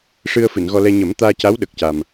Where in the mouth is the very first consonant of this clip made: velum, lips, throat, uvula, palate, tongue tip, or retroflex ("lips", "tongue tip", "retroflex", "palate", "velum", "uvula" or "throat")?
retroflex